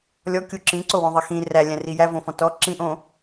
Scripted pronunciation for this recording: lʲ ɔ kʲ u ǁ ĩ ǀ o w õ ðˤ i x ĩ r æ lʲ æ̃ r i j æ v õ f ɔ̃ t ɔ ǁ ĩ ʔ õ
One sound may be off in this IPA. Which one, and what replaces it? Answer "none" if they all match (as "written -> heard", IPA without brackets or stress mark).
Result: none